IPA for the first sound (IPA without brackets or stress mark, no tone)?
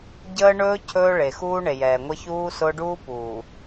ɟ